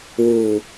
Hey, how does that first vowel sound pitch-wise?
low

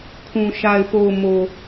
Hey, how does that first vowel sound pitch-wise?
low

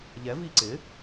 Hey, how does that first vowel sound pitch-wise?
rising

